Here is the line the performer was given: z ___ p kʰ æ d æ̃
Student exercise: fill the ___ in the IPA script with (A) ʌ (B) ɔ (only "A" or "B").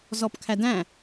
B